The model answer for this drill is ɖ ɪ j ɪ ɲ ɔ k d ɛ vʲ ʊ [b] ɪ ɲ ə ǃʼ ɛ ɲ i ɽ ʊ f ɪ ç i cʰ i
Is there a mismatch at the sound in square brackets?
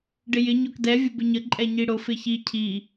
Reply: no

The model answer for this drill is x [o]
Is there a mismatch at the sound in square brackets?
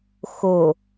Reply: no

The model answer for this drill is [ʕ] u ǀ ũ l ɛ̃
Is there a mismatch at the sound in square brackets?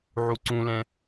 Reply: no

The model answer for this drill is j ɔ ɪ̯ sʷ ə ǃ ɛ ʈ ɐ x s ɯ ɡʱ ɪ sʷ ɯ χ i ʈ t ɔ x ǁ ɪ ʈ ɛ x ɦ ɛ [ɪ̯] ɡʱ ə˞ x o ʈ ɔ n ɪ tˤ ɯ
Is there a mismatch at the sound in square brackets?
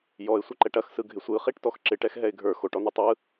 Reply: no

